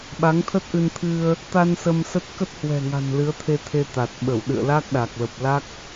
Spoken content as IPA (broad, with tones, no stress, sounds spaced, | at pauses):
ɓ a˨˦ ŋ t̪ʰ ə˦˥ t̚ ʔ ɨ˧ n t̪ʰ ɨ˧ ə̯ | t̪ a˧ n s ə˧ m s ə˦˥ t̚ k ə˦˥ t̚ h w ɛ̤˨˩ ŋ a̤˨˩ n l ɨ˨˦ ə̯ t̪ʰ e˧ t̪ʰ e˧ t̪ a˨˩ t̚ ɓ ə˧˩ w ɗ ɨ̰˧˨ ə̯ l a˦˥ k̚ ɗ a˨˩ k̚ l ə˨˩ p̚ l a˦˥ k̚